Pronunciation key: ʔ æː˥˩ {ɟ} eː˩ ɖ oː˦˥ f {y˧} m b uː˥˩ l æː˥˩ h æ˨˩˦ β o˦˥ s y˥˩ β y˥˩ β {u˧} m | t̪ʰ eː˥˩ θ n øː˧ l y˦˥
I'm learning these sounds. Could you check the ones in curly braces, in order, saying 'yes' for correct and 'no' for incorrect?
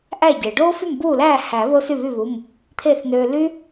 yes, no, no

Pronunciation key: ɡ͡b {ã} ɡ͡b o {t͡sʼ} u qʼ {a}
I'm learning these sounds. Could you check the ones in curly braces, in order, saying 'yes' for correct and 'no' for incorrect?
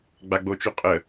no, no, no

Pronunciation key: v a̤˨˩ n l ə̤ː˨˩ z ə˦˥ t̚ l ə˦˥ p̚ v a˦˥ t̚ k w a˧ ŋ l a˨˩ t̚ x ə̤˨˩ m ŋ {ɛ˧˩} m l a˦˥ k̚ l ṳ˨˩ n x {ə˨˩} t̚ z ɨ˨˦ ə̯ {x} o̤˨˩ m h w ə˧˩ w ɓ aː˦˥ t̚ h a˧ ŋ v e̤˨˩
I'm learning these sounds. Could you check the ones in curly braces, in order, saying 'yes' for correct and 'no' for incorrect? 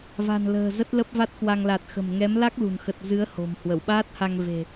no, yes, no

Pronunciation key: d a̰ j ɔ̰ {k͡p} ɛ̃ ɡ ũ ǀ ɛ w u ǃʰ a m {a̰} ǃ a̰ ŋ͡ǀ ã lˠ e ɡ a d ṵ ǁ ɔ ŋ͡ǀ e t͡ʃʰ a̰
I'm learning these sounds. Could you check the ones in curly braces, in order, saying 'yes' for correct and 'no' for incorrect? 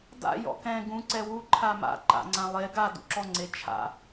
no, yes

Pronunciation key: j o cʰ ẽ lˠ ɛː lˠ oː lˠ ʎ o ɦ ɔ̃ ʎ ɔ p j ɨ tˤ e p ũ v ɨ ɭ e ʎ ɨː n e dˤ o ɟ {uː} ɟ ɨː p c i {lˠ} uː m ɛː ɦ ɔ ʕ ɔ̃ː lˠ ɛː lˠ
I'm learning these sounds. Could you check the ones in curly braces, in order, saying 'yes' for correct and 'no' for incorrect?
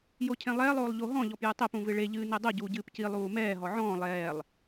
yes, yes

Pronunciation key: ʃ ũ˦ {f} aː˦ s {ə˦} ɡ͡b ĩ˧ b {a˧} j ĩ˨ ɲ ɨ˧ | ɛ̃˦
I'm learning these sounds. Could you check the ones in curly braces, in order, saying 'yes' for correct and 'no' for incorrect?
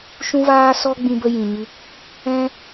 no, no, no

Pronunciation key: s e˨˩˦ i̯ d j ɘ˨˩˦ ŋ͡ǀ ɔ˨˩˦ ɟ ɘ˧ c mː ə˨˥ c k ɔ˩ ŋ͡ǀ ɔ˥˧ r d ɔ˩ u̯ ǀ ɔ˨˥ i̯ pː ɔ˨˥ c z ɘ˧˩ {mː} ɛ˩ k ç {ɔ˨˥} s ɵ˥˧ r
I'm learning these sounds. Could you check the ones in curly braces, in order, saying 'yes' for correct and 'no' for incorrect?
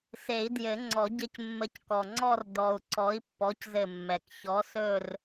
yes, yes

